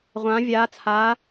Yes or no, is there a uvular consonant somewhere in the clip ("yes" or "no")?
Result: yes